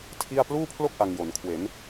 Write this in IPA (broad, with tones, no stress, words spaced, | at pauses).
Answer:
tʰi˥˩a̯ pluː˥˩pʰlo˥˩k̚ ʔa˧ŋjo˩˦n kʰwe˩˦n